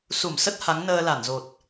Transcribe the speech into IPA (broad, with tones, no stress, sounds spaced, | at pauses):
s u˧˩ m s ə˦˥ t̚ h a˨˦ ŋ n əː˧ l a˧˩ n z o˨˩ t̚